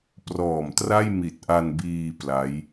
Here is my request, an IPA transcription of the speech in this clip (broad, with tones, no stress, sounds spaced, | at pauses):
p r ɔː˨˩ m t r a˥˩ j m i˨˩ t̚ ʔ a˧ n b iː˧ p l a˦˥ j